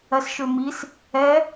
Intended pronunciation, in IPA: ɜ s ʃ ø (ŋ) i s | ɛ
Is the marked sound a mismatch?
yes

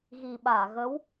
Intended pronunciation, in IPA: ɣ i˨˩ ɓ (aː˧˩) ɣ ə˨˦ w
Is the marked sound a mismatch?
no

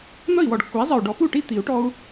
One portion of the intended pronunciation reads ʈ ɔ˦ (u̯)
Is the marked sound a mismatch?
no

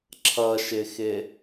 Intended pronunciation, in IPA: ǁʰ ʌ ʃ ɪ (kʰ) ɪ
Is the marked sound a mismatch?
yes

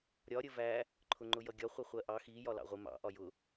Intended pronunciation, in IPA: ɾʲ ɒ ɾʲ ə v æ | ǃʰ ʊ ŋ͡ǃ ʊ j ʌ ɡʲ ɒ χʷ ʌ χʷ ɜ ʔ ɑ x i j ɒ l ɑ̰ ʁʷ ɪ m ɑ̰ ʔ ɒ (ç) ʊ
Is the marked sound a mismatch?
yes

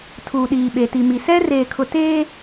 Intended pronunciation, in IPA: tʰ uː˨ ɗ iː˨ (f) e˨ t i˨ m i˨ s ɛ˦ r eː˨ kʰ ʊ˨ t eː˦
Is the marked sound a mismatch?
yes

